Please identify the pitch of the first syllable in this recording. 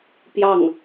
falling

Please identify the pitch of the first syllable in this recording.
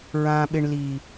low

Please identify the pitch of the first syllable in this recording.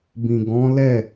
low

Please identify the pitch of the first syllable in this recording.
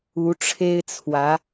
rising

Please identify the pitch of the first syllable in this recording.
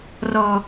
low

